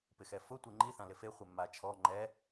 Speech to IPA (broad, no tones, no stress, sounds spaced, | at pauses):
p ɪ x ɛ f ʊ tʷ i ŋ͡ǃ i θ ã l ɪ f e χʷ e mː a t͡ʃʰ ɔ ŋ͡ǃ ɛ